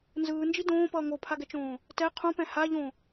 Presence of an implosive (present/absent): absent